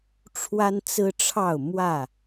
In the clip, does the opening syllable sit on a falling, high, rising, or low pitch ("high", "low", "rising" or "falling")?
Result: high